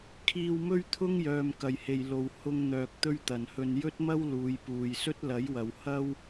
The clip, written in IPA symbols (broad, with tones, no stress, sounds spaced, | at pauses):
kʰ iː˧ w m ɵ˥ ɥ t̪ʰ ʊ˥ ŋ j œː˨ m k ɐ˨ j h e˨ j l o˨ w h ʊ˧ ŋ n̪ œː˨ k̚ t̪ ɵ˥ ɥ t̪ ɐ˨ n h ɵ˧ n j ɵ˥ t̚ m ɐ˥ w l uː˨˧ j p uː˨ j s ɵ˥ t̚ l ɐ˨˥ j w ɐ˨ w h ɐ˥ w